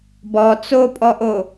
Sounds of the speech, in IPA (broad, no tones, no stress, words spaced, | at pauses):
bɔ t͡sopʼɔʔo